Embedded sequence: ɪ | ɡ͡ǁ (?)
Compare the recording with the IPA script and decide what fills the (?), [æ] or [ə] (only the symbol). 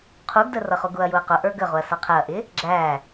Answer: æ